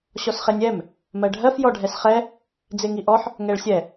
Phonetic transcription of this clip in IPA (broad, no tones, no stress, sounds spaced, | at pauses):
ɕ ɔ s χ e nʲ ɛ m | m ɜ ɖʱ ɜ f j ɔ ɖʱ ɛ s χ ɛ | d͡z e ŋ i ʔ ɔ ħ | ŋ ɛ ɭ sʲ ɛ